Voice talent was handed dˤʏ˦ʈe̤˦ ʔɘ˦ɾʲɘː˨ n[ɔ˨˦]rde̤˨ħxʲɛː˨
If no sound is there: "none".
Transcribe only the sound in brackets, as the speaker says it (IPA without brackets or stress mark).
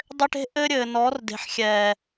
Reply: ɔ˨˦